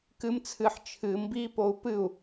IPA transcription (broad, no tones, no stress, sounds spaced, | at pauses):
k ɨ m t͡sʰ ɨ ħ t͡ʃʰ ɨ m b i p o u̯ p ɨ u̯